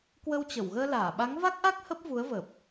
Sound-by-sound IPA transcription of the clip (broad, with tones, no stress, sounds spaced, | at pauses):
k w ə˧ w t͡ɕ ə˧˩ w ɣ əː˧ l aː˧˩ ɓ a˨˦ ŋ v a˦˥ k̚ ʔ a˦˥ k̚ h ə˦˥ p̚ v u˨˦ ə̯ v əː˨˩ p̚